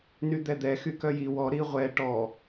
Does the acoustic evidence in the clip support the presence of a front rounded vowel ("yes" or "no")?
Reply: yes